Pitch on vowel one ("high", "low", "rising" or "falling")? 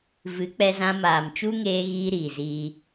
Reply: rising